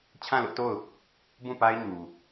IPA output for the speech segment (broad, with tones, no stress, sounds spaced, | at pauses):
t͡ɕʰ ã˦˨ l ʊ˦ ʔ t o˦˨ ʊ̯ | b ũ˦˨ p a˦ ɪ̯ ɲ u˨